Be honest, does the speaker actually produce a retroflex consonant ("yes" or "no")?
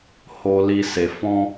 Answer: no